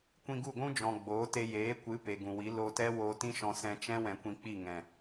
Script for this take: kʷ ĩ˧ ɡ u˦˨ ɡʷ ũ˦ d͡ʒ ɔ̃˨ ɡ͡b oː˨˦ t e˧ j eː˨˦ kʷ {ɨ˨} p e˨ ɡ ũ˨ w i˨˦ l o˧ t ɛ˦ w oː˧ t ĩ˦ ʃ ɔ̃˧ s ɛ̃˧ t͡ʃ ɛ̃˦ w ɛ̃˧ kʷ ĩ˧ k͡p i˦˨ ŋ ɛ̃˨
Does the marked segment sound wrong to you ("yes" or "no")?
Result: yes